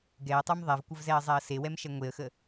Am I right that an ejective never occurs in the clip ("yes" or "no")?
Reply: yes